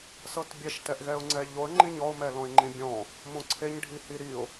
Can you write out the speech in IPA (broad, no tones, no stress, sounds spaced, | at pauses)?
s ɤ t bʲ ɛ ʃ t ɛ ʔ ɣ ɛ ʊ̯ ŋ͡ǀ ɛ ʎ o ə̯ ŋ͡ǃ ĩ ɲ ɔ ʊ̯ m ɛ l ɔ̃ ɪ̯ ŋ͡ǃ ĩ bʲ ɔ̃ | m õ ǀʰ e ɲ ɖʱ i h i ɾ i ʊ̯